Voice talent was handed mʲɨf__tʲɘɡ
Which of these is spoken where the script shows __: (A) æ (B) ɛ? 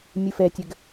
B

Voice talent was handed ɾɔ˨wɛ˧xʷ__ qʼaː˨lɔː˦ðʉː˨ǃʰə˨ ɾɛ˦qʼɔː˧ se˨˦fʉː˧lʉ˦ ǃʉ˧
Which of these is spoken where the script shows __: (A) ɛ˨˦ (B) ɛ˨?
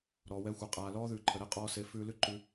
B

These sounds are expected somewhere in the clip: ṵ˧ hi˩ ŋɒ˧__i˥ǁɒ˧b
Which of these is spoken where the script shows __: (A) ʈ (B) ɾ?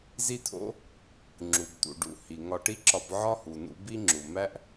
A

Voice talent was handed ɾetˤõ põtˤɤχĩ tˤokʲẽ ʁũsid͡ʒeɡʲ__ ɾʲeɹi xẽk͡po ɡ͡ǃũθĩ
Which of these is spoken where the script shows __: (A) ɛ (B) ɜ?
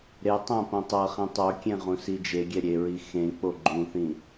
A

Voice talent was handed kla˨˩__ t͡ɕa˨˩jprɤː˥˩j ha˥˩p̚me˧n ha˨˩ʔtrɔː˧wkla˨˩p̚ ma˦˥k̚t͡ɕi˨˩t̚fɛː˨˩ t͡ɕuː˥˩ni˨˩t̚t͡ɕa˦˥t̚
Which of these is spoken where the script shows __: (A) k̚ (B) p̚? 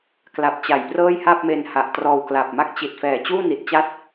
B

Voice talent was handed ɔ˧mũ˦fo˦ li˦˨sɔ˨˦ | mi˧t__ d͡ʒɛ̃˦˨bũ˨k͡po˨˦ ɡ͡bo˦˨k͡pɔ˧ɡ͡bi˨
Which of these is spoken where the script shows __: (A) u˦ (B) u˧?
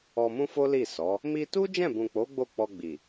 A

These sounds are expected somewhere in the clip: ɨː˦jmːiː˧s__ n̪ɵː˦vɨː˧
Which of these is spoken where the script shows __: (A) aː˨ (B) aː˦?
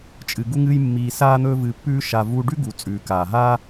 B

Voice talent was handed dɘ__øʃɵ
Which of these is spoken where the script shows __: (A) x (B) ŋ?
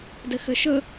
A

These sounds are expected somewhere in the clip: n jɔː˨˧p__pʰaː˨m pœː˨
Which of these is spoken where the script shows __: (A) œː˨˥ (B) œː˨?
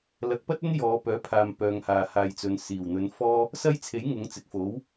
A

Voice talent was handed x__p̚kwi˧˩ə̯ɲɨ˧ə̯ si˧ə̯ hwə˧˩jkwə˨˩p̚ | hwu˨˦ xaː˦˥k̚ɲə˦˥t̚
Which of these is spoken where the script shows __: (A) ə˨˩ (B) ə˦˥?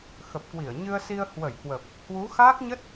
A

